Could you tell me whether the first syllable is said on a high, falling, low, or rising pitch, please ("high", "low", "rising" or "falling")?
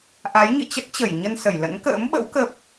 rising